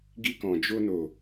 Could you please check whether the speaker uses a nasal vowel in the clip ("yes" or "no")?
yes